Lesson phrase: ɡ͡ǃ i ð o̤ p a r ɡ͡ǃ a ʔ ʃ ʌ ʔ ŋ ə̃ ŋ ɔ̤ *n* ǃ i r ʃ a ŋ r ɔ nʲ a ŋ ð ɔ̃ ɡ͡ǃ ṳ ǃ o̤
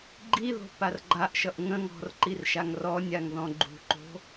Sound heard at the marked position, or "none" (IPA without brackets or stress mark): r